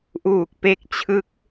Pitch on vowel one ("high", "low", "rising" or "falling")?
low